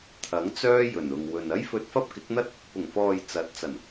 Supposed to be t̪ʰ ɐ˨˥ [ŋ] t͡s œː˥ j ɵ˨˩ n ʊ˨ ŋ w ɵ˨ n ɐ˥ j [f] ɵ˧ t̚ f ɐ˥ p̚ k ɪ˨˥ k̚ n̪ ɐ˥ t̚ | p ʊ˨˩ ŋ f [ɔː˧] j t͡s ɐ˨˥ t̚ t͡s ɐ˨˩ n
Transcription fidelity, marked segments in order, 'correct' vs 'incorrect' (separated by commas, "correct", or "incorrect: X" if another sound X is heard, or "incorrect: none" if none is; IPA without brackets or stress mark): correct, correct, incorrect: ɔː˨